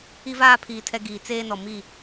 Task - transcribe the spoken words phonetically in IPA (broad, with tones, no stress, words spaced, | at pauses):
i˦vaː˦pʰiː˨ tʰɛ˦ ɡiː˨t͡seː˦nɔ˨ mi˦˨